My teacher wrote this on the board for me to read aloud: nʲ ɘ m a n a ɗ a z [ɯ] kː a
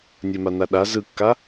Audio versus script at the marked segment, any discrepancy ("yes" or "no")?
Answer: no